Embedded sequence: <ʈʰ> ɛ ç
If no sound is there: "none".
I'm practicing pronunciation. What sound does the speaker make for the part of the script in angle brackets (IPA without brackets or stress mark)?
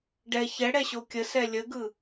ɖ